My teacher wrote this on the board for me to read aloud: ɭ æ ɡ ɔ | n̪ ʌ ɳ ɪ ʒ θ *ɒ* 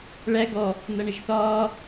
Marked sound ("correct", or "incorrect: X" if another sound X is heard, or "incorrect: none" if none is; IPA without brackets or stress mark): incorrect: ɒː